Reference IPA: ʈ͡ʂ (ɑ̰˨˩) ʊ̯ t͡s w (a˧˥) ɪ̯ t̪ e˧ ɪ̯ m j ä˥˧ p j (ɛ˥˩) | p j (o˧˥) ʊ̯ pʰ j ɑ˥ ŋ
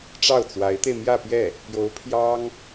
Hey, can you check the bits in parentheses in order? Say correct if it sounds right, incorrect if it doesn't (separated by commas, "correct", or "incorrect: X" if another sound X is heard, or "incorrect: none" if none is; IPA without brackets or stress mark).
incorrect: ɑ˥˩, correct, correct, correct